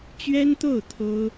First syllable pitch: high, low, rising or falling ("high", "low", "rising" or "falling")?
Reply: high